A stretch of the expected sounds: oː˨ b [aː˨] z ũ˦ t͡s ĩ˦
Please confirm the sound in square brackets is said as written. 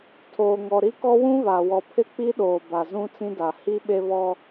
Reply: no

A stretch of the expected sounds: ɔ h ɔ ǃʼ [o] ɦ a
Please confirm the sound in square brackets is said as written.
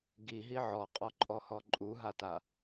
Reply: no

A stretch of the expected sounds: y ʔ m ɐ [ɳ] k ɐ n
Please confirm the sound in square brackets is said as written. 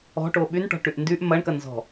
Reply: yes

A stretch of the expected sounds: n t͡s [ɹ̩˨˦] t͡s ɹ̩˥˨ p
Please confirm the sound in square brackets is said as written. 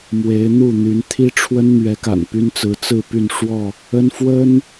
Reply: yes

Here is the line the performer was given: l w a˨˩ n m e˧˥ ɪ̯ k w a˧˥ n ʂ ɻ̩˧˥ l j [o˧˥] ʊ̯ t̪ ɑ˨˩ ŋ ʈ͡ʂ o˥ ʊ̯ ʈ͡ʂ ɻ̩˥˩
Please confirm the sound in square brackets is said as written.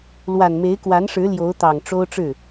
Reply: yes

